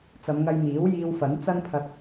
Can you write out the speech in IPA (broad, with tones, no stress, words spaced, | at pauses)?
t͡sɐ˨˧mŋɐ˧jmiː˨˥w jiː˧wfɐ˨˥n t͡sɐ˥npʰɐ˧t̚